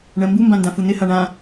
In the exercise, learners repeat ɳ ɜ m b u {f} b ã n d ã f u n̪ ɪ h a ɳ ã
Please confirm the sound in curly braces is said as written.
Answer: no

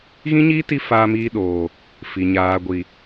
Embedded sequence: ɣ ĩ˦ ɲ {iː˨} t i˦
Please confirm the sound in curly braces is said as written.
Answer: no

